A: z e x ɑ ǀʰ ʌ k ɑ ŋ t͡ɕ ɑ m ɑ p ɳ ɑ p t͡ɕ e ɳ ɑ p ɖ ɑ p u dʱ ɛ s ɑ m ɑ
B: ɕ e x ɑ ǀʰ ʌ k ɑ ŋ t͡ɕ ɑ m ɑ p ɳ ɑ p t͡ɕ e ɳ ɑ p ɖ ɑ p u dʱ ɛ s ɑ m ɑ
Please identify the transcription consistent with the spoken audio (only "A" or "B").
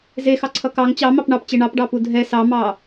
A